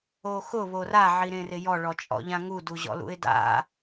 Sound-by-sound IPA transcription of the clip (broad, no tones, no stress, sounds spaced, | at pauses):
o x ʊ β o r a ʕ i ɾ ẽ r ɪ j ɔ ɭ ɔ t͡ʃʼ ɔ̰ ʎ ã ŋ u d u ʑ ɔ̰ l ṵ ɪ̯ d a̰